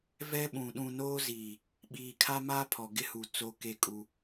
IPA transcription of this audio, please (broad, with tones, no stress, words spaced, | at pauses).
vɛ˦ɓũ˨ ɗũ˨noː˦ziː˨ | ɓiː˨kʰa˦maː˦ pʰɔ˨ɡɪ˦hu˨ t͡so˦ke˦kʼu˦